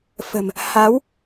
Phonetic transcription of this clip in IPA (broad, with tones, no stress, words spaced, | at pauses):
fə̤˨˩m | ha˨˦w